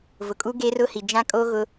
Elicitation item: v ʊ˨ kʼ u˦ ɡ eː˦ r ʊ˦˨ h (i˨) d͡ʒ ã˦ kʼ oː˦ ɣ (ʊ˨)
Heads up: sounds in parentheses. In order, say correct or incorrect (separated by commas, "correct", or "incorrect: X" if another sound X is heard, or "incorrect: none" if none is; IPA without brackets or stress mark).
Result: correct, incorrect: ʊ˦